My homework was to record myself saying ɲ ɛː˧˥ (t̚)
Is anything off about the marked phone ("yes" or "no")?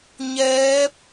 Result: yes